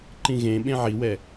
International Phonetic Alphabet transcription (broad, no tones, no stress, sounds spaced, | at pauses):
ǃ ĩ ɣ ẽ ɓ ẽ ʕ i w ɛ